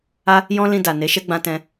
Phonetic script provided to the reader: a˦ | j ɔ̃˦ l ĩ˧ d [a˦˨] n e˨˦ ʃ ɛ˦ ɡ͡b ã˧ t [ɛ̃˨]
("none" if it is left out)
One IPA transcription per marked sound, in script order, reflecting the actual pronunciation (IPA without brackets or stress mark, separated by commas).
a˨, ɛ̃˧